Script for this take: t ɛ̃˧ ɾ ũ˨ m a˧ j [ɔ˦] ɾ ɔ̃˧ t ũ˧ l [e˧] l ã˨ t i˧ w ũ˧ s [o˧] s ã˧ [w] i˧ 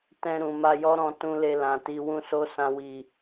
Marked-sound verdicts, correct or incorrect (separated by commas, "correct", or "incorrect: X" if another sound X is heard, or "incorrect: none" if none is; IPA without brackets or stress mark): correct, correct, correct, correct